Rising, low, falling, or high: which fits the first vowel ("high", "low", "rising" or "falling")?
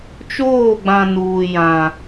falling